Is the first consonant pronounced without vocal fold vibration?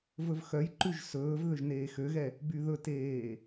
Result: no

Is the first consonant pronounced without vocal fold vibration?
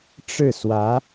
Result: yes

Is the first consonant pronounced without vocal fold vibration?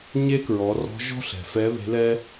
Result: no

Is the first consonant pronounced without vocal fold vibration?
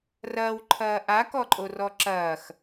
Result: no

